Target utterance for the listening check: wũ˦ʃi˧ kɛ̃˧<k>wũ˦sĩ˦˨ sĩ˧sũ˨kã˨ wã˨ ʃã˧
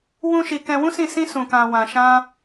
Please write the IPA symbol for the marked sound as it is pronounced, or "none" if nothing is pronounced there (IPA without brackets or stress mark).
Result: none